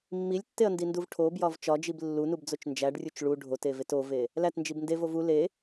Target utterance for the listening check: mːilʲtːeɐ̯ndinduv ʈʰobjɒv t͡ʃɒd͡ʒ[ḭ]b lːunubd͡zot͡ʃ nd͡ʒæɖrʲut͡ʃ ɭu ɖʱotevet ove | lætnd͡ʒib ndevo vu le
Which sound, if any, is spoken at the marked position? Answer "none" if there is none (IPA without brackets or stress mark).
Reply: i